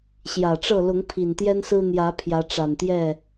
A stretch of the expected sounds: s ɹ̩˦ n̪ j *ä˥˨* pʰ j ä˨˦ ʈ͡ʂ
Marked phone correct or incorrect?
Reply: incorrect